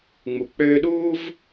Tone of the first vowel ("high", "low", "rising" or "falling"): low